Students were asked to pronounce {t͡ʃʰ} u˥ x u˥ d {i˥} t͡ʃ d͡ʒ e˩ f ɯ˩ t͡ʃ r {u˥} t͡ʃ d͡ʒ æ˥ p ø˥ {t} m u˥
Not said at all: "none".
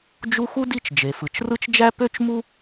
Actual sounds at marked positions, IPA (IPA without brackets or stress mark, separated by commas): d͡ʒ, i˥, ɯ˥, t͡ʃ